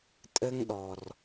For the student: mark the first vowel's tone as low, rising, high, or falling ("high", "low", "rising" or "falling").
high